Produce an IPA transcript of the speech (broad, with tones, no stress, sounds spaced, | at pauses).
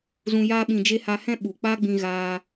z ũ˧ j aː˦ ɓ ĩ˧ d͡ʒ e˦ h a˧ h ɛ̃˦ ɓ u˨ k͡p a˦ ɡ͡b ĩ˧ ɣ aː˧